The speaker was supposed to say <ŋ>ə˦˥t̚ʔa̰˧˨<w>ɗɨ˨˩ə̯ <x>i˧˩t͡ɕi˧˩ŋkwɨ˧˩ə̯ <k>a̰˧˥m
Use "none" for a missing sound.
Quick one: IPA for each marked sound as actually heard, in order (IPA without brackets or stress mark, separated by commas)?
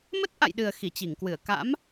m, j, x, k